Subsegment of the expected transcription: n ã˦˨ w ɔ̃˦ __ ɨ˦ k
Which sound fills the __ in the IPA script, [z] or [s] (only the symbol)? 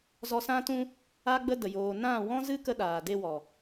z